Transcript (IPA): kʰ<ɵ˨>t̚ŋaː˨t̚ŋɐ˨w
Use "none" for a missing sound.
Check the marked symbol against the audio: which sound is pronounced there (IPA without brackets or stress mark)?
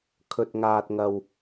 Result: ɵ˨